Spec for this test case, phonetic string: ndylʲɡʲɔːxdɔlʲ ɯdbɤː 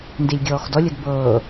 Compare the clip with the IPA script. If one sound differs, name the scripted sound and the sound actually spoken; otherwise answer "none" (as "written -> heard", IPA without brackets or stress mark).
y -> i